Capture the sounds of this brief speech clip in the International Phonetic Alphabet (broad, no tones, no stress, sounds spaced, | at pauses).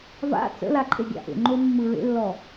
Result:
v a̰ t͡s ə̰ l a ǃʼ e ɡʲ a̰ ʔ ḛ ŋ͡ǃ o mː ɯ ɹ ḛ lː ɔ